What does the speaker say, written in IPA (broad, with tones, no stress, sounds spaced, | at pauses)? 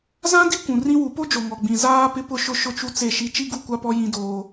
z ã˦ d i˦ kʷ ũ˨ r ĩ˦ w u˨˦ p o˦ d͡ʒ o˨ ŋ ɔ˨ ɡ͡b ĩ˨ z aː˦ p ɪ˦ p ʊ˦ ʃ ʊ˦ ʃ ʊ˦ t͡ʃ u˦ t͡s e˦˨ ʃ i˦ t͡ʃ i˦ ɡ u˦˨ kʷ a˦ p ɔ˦ j ĩ˦ d oː˦